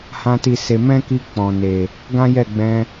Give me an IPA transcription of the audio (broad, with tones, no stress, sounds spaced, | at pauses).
h ã˦ t i˦˨ s e˧ m ɛ̃˦ k i˧ k͡p ɔ̃˨ n e˨ | ɡ ã˦ j ɛ˦˨ ɡ͡b ɛ̃˧